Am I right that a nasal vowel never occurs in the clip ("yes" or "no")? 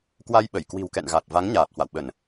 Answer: yes